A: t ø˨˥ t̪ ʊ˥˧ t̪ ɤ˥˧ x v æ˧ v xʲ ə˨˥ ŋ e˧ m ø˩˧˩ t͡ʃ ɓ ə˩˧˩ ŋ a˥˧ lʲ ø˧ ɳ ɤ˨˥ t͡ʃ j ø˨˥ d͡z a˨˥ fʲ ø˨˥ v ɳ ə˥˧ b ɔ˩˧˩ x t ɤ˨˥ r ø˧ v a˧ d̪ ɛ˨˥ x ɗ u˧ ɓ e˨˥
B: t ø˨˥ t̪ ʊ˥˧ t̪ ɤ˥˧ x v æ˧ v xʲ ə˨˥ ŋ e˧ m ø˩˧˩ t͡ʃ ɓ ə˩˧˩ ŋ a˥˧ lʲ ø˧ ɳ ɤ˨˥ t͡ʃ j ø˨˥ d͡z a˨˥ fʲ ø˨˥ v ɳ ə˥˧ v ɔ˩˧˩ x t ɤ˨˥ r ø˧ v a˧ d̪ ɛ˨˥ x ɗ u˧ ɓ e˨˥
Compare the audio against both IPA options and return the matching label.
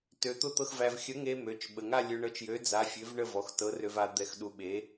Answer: B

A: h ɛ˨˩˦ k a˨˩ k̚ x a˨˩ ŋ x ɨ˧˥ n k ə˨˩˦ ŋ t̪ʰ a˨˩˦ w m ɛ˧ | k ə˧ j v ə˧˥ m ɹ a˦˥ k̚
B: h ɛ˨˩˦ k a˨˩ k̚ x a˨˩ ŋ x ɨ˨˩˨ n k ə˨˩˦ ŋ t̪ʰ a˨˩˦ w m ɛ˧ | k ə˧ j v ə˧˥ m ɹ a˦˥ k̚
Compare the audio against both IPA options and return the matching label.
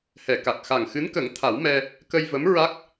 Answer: A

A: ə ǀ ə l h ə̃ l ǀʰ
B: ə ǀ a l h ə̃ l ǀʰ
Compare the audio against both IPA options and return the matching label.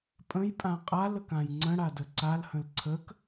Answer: B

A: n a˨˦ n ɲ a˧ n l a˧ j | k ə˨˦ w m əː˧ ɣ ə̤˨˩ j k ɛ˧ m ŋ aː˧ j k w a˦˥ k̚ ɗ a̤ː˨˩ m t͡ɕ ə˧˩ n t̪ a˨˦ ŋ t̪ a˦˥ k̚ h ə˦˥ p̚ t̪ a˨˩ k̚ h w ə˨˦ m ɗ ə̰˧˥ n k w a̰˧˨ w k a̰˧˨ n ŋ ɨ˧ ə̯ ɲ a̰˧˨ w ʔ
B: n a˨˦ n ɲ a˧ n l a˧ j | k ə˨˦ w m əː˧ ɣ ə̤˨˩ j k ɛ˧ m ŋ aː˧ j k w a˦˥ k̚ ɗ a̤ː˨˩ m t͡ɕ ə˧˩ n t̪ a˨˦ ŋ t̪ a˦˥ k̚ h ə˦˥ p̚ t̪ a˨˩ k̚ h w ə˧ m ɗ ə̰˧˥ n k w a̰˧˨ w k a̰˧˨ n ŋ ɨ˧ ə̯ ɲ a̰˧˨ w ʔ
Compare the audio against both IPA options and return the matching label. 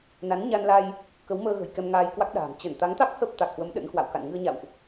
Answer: A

